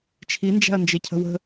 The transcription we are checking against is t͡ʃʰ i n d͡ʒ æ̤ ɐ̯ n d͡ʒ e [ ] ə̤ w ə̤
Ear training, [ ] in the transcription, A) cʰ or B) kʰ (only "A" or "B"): A